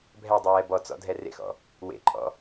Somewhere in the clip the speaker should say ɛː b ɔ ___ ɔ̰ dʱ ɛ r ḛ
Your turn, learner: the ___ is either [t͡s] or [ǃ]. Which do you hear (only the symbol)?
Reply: t͡s